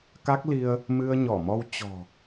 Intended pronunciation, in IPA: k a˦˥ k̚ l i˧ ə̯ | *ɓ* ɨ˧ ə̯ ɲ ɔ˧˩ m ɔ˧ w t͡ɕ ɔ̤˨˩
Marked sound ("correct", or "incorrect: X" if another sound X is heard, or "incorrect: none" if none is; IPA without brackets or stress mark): incorrect: m